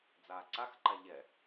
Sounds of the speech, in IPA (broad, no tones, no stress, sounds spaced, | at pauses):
d͡z aː ǀ a x ǃ a ʎ ɛ